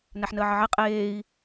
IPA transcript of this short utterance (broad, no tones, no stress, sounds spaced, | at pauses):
n æ ħ n əː ʕ ə ʕ e qʼ eː i̯